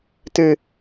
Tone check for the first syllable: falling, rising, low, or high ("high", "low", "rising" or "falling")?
high